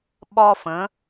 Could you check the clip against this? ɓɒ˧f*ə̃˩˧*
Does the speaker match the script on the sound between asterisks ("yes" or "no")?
yes